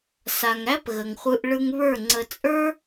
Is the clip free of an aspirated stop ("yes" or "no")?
yes